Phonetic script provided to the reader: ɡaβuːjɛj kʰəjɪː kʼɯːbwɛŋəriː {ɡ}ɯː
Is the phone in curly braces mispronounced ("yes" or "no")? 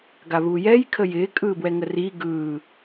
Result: no